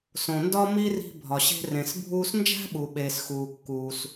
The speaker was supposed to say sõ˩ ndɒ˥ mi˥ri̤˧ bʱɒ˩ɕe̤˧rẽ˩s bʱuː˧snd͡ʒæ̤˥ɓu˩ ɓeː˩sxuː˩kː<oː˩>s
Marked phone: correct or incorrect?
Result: incorrect